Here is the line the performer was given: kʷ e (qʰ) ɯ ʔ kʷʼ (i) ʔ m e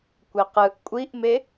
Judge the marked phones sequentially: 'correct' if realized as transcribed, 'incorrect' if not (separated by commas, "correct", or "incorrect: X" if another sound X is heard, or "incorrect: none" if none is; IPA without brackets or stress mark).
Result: incorrect: q, correct